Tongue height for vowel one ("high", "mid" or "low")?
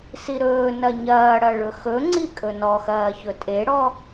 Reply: high